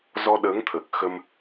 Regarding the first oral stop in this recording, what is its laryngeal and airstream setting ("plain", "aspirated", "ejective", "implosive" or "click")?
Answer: implosive